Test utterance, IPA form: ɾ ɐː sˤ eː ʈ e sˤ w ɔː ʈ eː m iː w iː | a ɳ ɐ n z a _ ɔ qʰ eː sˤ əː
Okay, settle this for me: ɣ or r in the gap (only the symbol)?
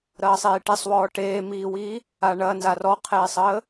r